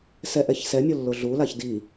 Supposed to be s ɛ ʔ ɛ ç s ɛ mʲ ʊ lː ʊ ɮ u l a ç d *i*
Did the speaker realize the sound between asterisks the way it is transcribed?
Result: yes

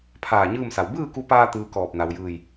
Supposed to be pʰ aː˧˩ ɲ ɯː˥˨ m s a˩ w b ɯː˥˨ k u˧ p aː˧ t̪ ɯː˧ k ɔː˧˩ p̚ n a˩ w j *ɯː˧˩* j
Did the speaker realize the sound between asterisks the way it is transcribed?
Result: yes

